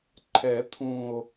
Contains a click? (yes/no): yes